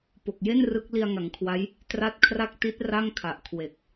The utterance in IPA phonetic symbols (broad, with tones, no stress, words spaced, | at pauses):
po˨˩k̚je˥˩n rɯ˦˥k̚ li˧a̯ŋa˩˦ŋkʰwa˦˥j | tra˥˩t̚ kʰra˥˩k̚ ti˦˥t̚ ra˥˩ŋkʰa˨˩ʔ kʰwe˨˩k̚